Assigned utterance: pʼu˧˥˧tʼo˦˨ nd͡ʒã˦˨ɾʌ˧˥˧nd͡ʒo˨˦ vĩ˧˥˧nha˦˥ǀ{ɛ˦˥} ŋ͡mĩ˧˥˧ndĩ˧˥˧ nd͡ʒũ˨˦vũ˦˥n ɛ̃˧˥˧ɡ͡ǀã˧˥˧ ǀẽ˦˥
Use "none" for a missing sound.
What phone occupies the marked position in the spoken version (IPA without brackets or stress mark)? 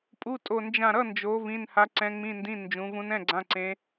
ɛ̃˦˥